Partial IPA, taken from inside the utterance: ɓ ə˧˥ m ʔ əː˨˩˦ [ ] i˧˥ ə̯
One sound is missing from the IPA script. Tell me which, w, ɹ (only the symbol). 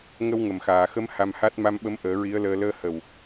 ɹ